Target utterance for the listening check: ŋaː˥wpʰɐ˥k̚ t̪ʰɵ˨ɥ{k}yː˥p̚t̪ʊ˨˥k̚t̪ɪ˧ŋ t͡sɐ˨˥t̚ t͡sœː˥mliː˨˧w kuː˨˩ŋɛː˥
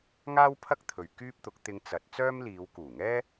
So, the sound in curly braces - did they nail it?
yes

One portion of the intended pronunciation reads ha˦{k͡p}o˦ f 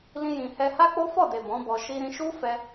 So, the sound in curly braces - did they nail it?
yes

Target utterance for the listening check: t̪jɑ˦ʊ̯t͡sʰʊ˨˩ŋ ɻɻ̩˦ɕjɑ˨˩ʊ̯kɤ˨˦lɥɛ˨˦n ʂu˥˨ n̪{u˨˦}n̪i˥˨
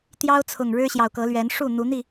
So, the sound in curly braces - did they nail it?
yes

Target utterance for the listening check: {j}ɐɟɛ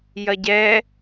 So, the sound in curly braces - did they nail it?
yes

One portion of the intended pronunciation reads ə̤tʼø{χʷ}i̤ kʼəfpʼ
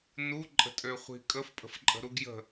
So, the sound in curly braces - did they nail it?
yes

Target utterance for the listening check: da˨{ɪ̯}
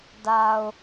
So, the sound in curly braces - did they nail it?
no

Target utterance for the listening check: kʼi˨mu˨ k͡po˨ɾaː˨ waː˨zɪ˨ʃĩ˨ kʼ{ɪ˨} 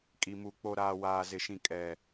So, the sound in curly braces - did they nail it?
no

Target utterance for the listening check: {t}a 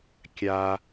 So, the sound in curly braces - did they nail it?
no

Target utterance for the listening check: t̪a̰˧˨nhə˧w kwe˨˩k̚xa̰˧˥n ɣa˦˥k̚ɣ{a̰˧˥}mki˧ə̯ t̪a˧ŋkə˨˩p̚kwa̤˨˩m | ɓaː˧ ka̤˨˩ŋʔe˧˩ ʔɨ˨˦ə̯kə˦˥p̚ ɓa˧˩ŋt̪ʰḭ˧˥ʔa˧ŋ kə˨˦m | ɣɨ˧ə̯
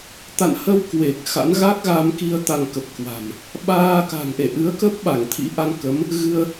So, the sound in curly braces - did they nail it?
no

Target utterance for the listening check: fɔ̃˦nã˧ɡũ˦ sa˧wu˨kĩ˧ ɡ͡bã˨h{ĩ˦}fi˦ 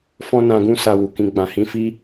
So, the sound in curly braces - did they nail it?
no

